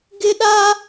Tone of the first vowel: high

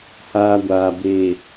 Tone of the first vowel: high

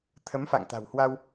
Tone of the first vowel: rising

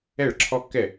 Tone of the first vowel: falling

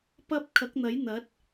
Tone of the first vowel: high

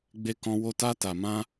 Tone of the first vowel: high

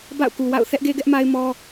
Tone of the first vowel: falling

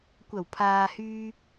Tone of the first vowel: low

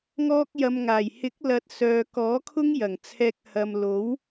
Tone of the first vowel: high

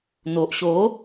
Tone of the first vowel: low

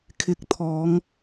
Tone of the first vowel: rising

